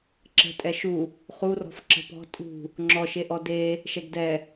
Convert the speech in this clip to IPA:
ǁ ə̤ tʼ ɛ ʃ u | χ u r ɔ̤ f ǁ ə̤ p ɔ̤ tʼ ṳ | ŋ͡ǁ ɔ ʃ e ʔ ɔ d e | ʃ ɛ ɡ d ɛ

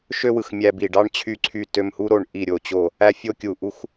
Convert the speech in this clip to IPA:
ʃ ø˧ w ɯ˨˩ x mʲ æ˧ b i˨˩ ɖ ɑ˧ ɳ t͡ɕʰ y˨˩ ǀʰ y˨˩ t ø˨˩ m h u˧ ɾ o˨˩ ɳ ʔ i˨˩ ɾʲ o˨˩ t͡ɕ o˨˩ | æ˧ fʲ o˧ kʲ u˨˩ ʔ u˧ x

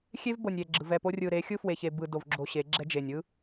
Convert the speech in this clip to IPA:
xʲ e˦ v b ɤ˨ nʲ ɾʲ ɛ˨ ɡ͡ǁ ɯ˨ v ɛ˦˨ p o˦ rʲ ɯ˨ ɾ e˨˦ xʲ ɯ˦ f w e˨ ç e˨ b ɯ˨ d o˨ v ɡ͡ǁ o˨ ɕ e˨˦ ɡ͡ǁ ɛ˦ d͡ʒ e˨ nʲ ɯ˦

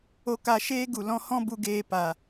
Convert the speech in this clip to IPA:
o˧ k a˧ ʃ eː˦ ɡ u˨ l ɔ̃˧ h ɔ̃˦ b u˧ ɡ eː˧ p a˨

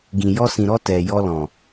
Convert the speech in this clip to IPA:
ɡ ĩ˨ j ɔ˧ s ĩ˨ ɾ ɔ˧ t ɛ˨ j ɔ˧ l ɔ̃˨

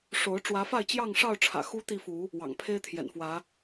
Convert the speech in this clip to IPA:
ʂ o˨˦ ʊ̯ ʈ͡ʂ w ä˨˦ f a˥˨ ɪ̯ t͡ɕ j ɑ˥˨ ŋ ʂ ɑ˥˨ ʊ̯ ʈ͡ʂʰ ä̰˨˩ x u˦ t̪ i˥˨ f u˨˦ | w ɑ̰˨˩ ŋ pʰ e˦ ɪ̯ t̪ʰ j ɛ̰˨˩ n f w ä˨˦

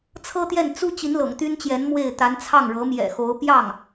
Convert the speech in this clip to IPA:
t͡sʰ ɤ˥ t̪ j ɛ˥˩ n t͡s u˥ t͡ɕ i˧˥ n l ɤ̰˨˩ ŋ t̪ y˥ n t͡ɕ j ɛ˧˥ n m w e˥˩ ɪ̯ t̪ a˧˥ n t͡sʰ ɑ˥˩ ŋ ɻ ɤ˧˥ m j ɛ̰˨˩ x o˧˥ ʊ̯ p j ɑ˥˩ ŋ

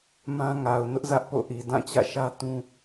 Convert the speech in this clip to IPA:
m ã˦ ŋ a˨ ʊ̯ n ʊ˦ ʔ z ä˦ ʔ p o̰˦˨ ʔ i˨ d ã˦˨ t͡ɕ ä̰˦˨ ʃ ä˦ t ũ˦

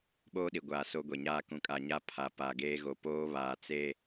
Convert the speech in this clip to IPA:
ɓ oː˦ ɗ i˨ ɡʷ aː˨ s o˦ ɡʷ e˨ ɲ aː˦ k ũ˨ kʼ a˨ ɲ a˦ pʰ a˨ p a˨ ɡ eː˦ ɣ o˨ p oː˦ β aː˨ t͡s e˦

